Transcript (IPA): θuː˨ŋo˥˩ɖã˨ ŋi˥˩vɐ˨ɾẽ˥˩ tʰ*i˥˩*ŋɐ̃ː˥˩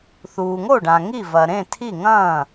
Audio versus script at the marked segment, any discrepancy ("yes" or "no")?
no